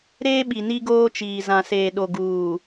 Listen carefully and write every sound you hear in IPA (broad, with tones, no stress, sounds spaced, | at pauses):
ɾ eː˦ ɓ i˨ n i˦ ɡ oː˦ t͡ʃ iː˨ z ã˨ s eː˨ ɗ o˨ ɡ uː˨